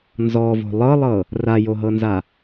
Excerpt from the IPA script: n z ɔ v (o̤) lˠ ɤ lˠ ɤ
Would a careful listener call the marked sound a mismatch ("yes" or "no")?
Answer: no